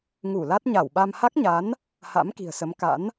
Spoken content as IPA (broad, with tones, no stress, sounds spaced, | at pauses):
ŋ u˧˩ l a˦˥ t̚ ɲ a˧˩ w ɓ a˧ m h a˦˥ k̚ ɲ a˨˦ n | h a̰˧˥ m k i̤˨˩ ə̯ s ə˨˦ m k a̰˧˥ n